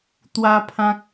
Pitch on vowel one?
high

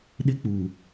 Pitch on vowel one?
high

